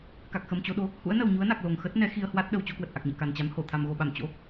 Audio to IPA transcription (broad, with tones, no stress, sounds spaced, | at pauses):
k a˨˩ k̚ x ə˨˩ m t͡ɕ o˧ ɗ o˨˦ | h ṵ˧˥ ə̯ n ə˨˩ w ɲ u˨˦ ə̯ n a˨˩ k̚ l o˨˩ ŋ x ə˦˥ t̚ n ɛ˨˦ x i˧ ə̯ h w a˦˥ t̚ ɗ ə˨˩ w t͡ɕ o˧ k w ə˨˩ t̚ ʔ a˨˩ k̚ ɲ ɛ̰˧˨ k a˨˩ n t͡ɕ a˨˦ m h o˧˩ t̪ʰ a˨˩ m ɣ o˨˩ ɓ a˧˩ m t͡ɕ o̰˧˥